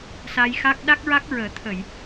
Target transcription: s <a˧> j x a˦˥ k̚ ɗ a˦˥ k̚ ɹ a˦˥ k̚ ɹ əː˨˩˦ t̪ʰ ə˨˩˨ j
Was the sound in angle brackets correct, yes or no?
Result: yes